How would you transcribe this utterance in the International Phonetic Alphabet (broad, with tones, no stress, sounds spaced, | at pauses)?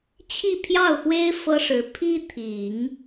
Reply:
t͡ɕʰ i˥˧ pʰ j ɑ˥˩ ʊ̯ x w e˥ ɪ̯ f ɤ˥ ʂ ɻ̩˧˥ pʰ i˥ t̪ʰ i˨˩˦ ŋ